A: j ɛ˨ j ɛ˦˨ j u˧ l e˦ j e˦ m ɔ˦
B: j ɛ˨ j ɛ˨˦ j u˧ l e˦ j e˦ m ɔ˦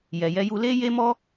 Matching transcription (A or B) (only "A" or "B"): B